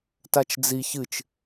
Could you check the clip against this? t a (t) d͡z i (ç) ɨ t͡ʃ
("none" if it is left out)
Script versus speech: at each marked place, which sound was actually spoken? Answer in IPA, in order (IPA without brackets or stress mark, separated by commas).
t͡ʃ, ç